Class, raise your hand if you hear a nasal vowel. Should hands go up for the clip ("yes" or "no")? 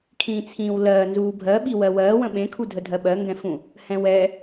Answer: yes